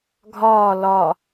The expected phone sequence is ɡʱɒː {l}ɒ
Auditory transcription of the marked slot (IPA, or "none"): l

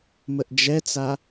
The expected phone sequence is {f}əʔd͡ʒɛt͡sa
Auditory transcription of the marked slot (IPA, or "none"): m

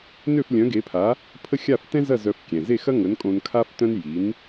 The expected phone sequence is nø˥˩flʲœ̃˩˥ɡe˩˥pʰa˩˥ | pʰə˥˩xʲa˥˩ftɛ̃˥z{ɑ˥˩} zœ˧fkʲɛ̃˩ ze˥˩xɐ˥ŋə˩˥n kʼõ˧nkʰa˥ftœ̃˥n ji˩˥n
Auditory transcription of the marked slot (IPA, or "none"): ɐ˥˩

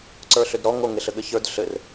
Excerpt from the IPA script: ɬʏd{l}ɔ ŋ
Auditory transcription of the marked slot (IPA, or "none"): ɾ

